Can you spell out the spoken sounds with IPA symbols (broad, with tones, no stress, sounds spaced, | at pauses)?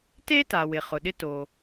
t e˥ t a˩ w ɪ˩ χ ʊ˩ ɗ ɪ˧ t o˩